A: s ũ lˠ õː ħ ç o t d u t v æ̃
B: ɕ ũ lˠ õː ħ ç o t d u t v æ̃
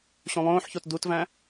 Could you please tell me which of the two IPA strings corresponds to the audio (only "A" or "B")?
B